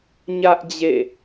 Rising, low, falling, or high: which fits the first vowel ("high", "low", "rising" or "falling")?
high